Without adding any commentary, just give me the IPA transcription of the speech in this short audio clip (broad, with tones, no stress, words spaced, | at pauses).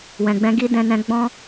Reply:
wɛ̃˨ɡ͡bɛ̃˧ɡi˦ dɛ̃˦nɛ̃˦ ɡ͡bɔ̃˦